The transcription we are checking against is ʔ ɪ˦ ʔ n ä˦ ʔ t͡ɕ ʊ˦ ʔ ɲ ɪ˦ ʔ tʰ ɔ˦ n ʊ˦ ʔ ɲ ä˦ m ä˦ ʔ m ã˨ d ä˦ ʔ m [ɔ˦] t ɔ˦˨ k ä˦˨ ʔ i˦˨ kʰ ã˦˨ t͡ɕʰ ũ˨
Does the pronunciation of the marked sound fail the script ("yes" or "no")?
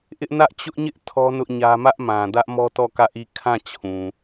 no